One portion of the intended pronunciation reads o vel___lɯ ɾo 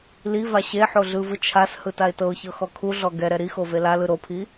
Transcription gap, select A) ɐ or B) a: B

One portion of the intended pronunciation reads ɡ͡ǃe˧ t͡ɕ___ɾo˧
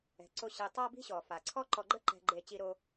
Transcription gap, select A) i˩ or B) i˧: B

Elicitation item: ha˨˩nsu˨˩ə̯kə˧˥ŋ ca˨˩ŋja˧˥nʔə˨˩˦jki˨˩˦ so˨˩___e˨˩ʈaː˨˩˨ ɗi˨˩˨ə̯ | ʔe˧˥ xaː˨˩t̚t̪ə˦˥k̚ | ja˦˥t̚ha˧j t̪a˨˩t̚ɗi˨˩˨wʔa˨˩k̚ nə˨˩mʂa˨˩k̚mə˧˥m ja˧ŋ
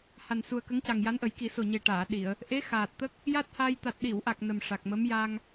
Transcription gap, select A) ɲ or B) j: A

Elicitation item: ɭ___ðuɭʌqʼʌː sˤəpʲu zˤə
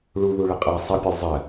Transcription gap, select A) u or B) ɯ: A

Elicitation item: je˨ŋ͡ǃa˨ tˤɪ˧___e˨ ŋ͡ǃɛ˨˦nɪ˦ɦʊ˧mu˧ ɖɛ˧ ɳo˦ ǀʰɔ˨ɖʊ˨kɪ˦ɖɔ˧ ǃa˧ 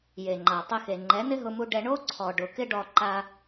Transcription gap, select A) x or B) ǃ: A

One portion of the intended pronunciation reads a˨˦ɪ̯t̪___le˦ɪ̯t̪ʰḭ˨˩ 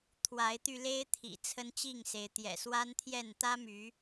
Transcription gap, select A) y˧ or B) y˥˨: A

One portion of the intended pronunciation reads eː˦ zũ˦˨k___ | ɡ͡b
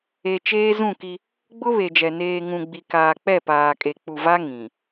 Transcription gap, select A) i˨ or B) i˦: B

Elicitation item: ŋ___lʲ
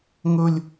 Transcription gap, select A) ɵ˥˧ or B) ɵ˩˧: A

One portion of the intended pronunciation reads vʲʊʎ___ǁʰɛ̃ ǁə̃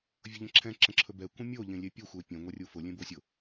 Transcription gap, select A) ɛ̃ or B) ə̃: B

